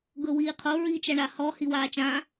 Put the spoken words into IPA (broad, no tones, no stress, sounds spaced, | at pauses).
ɡ ɤ w iː qʰ o ɹ iː t͡ʃ a ɳ a h ɔ h i w aː t͡ʃ ã